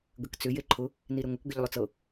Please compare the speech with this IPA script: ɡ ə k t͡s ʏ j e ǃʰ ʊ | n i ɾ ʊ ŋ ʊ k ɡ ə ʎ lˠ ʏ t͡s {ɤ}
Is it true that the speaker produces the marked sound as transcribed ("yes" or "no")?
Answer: yes